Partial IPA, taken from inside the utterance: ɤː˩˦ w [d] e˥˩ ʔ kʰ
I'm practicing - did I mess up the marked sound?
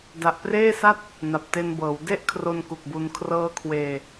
no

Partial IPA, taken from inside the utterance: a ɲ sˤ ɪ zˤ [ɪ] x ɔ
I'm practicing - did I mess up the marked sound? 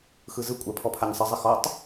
no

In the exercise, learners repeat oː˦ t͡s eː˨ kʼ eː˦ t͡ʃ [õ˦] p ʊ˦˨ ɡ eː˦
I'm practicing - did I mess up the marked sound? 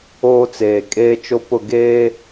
yes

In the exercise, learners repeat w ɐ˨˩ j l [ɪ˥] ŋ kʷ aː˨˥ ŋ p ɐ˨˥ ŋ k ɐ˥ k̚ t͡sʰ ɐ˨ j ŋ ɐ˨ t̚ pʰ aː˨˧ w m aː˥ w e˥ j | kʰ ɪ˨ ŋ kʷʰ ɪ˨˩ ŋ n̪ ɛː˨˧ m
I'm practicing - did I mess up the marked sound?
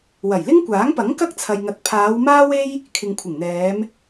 no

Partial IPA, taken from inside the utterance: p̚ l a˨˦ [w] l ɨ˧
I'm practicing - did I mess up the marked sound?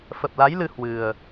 yes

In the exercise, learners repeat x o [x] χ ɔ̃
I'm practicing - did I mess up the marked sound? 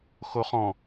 yes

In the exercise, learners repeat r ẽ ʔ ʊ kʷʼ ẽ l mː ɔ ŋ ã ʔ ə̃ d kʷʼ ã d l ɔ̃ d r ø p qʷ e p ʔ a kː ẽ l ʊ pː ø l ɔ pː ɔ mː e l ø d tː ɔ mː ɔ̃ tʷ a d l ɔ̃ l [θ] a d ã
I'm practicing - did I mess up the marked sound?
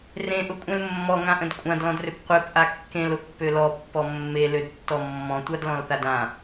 no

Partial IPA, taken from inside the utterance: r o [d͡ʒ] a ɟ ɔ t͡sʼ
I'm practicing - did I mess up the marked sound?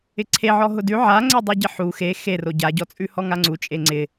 yes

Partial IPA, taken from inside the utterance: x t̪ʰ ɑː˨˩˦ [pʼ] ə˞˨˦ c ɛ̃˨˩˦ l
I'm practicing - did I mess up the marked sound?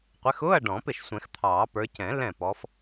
yes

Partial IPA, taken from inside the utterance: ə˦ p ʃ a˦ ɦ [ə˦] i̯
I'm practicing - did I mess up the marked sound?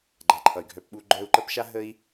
no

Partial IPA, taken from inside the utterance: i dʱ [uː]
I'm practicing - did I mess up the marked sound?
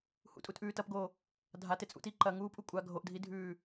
yes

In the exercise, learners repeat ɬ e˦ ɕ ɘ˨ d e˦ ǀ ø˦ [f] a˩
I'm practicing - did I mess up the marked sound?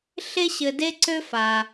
no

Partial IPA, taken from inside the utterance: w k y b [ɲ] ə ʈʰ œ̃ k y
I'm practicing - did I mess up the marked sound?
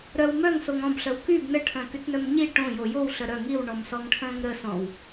yes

